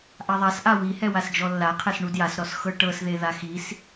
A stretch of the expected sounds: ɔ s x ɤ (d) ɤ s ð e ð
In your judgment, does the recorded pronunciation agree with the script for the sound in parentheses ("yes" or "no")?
no